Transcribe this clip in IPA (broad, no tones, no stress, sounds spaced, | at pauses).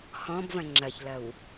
h ɔ̃ b v ɐ̃ ŋ͡ǁ ɐ ç l ɐ w